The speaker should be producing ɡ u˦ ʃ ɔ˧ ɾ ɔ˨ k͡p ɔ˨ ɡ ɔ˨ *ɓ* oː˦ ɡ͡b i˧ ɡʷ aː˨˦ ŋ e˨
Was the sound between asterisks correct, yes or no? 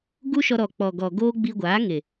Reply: no